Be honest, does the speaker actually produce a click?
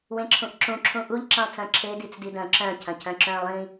yes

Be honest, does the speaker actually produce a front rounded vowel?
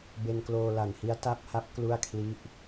no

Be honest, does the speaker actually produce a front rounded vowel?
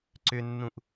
yes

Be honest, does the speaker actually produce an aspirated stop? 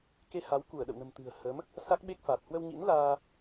no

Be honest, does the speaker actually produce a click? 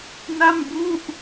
no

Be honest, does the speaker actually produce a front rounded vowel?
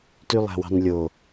yes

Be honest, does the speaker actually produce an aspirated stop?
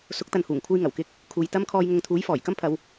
yes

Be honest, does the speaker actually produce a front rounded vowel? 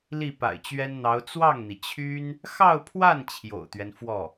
yes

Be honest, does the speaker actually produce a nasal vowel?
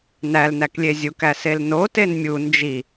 no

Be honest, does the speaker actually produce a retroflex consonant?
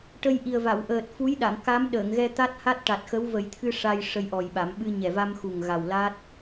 yes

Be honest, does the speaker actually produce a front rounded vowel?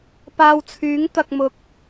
yes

